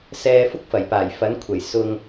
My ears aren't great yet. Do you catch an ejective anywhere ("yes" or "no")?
no